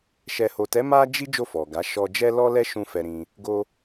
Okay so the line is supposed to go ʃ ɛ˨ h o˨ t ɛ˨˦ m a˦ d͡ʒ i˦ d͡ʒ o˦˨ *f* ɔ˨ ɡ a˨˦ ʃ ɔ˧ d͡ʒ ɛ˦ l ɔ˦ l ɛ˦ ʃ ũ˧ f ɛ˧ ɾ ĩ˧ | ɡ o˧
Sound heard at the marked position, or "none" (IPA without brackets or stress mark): f